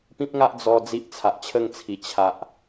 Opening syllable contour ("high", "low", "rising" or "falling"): high